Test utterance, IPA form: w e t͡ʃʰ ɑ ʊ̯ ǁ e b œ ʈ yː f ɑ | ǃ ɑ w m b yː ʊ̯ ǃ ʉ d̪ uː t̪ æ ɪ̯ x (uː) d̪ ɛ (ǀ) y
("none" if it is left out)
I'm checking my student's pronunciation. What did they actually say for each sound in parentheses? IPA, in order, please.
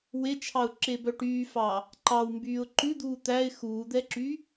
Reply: uː, ǁ

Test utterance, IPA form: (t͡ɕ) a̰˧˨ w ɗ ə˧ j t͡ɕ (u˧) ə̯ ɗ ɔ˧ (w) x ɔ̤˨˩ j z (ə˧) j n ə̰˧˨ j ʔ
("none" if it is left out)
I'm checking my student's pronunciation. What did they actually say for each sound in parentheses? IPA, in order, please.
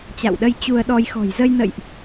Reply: t͡ɕ, u˧, j, ə˧

